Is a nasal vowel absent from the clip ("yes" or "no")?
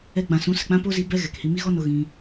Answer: no